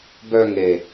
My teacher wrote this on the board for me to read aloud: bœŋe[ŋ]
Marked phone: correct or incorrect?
incorrect